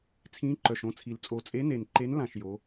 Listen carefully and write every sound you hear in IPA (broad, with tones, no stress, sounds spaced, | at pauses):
t͡sʰ ĩː˧˥ ǃ œ˨˩ ʃ õ˧˥ t͡sʰ i˨˩ l t͡sʼ o˨˩ t͡sʼ e˧˥ n e˨˩ n ǃ e˧˥ n l ã˦˨ ʃ j o˩˥